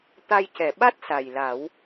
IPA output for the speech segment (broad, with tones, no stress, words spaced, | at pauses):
t̪a˧jcɛ˨˩˨ɓa˦˥t̚ sa˨˩jla˨˩˦w